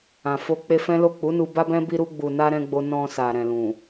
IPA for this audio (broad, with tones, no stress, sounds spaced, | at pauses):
ã˨ f o˧ k͡p e˧ f ɛ̃˦ l o˦˨ k͡p u˨˦ n u˧ b a˦ b ɛ̃˦ b i˧ ɾ u˧ ɡ͡b u˨ n a˧ ɾ ɛ̃˦ ɡ͡b o˦ n ɔ̃˧ s a˨ ɾ ɛ̃˨ l ũ˨